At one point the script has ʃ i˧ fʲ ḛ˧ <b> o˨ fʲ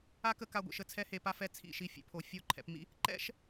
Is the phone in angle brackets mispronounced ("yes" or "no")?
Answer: yes